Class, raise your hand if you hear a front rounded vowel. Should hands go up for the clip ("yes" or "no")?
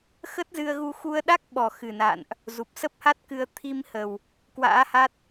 no